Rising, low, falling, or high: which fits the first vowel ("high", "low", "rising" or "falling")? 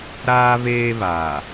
high